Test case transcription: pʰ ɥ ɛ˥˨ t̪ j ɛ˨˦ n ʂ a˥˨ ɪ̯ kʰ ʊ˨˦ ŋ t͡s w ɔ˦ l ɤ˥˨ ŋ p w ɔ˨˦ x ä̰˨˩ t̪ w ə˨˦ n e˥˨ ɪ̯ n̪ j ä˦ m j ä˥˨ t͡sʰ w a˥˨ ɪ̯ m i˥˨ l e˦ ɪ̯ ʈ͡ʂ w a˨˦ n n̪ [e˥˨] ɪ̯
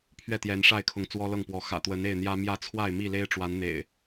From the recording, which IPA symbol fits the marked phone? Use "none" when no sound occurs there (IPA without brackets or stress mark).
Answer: ḛ˨˩